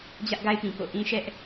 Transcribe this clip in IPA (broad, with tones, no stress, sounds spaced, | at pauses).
d͡ʑ ä˦ ʔ ɡ a˦ ɪ̯ p ĩ˨ k o̰˦˨ ʔ ĩ˦ ʃ ɛ˦ ʔ